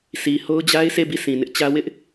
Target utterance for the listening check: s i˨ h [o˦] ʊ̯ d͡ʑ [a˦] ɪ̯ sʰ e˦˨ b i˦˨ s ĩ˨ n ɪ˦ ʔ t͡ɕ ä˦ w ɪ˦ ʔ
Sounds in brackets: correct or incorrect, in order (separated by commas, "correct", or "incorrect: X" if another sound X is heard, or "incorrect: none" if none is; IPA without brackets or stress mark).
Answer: correct, correct